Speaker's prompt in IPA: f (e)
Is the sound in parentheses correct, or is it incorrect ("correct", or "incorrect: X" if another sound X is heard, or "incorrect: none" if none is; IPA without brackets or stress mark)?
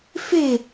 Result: correct